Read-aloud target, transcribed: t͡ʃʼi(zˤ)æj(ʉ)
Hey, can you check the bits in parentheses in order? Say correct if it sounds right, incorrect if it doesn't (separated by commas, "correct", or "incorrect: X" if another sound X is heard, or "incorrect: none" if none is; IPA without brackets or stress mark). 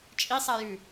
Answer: incorrect: sˤ, correct